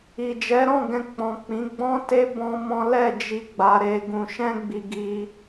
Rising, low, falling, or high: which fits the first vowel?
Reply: low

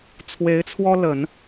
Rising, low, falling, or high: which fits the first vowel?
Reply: rising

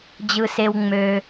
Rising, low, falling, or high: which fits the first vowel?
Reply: low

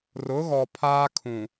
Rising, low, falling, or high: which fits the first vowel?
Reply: rising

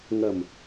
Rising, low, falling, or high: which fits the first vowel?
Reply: low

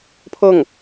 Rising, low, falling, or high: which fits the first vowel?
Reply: falling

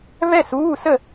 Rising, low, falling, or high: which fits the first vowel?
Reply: falling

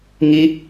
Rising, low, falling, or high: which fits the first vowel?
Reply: high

